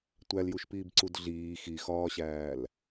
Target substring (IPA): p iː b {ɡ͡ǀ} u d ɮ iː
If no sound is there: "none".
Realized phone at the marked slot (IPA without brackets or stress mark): ǀ